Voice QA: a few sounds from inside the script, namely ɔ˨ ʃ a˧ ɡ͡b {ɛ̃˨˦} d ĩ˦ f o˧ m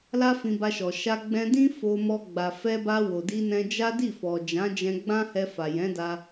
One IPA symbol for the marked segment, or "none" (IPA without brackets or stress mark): ɛ̃˧